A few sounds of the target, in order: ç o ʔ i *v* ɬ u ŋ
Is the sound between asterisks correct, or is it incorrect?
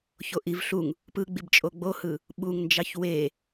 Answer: correct